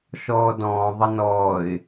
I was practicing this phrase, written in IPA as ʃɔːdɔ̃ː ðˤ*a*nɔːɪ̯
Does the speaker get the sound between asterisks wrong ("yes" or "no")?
yes